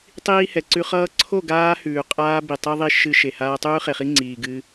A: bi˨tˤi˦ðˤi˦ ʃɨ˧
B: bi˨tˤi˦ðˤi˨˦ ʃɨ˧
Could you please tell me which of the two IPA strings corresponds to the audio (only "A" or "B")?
A